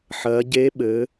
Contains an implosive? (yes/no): yes